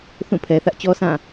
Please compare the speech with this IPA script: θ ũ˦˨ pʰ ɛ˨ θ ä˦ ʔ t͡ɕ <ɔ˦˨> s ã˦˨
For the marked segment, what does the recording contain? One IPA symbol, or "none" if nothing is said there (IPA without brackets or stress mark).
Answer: ɔ˦